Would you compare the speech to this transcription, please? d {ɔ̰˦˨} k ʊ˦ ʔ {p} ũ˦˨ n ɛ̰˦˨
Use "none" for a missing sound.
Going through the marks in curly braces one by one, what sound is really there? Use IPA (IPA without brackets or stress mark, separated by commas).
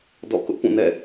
ɔ̰˦˨, p